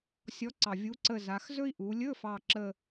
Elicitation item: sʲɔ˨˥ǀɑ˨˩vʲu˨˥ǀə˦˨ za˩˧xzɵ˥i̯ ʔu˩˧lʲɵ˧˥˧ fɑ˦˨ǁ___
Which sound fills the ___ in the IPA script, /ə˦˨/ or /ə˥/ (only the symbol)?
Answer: ə˦˨